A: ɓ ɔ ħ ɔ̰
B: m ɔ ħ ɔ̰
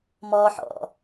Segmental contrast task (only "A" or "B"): B